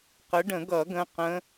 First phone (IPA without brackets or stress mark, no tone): q